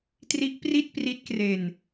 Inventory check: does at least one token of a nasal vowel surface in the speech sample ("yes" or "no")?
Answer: no